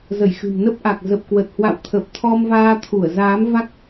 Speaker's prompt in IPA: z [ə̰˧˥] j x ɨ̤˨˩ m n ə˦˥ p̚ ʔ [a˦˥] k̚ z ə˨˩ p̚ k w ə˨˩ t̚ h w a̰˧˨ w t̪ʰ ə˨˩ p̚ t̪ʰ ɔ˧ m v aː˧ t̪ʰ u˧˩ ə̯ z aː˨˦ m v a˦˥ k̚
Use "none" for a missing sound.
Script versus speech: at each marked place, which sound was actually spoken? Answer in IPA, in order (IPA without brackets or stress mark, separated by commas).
ə˧˩, a˨˩